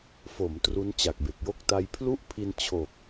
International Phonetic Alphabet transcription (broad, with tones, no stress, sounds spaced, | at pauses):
f o˩˦ m t r u˦˥ n t͡ɕ a˨˩ k̚ b e˨˩ k̚ j o˥˩ k̚ t a˧ j pʰ l u˥˩ ʔ pʰ i˧ n t͡ɕʰ o˨˩ k̚